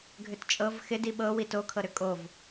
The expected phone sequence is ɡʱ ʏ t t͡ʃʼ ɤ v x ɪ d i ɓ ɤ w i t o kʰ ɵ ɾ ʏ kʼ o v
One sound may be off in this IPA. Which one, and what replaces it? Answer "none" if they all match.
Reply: ɵ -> ɤ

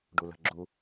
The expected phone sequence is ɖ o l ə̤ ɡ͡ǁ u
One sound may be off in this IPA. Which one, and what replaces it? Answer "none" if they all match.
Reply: o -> u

